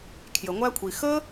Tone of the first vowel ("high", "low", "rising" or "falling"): low